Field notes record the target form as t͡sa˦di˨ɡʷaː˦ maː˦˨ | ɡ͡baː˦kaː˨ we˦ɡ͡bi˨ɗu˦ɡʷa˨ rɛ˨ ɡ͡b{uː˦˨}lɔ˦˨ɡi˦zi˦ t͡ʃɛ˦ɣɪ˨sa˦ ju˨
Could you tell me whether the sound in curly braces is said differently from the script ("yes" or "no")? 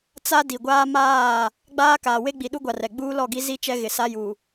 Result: yes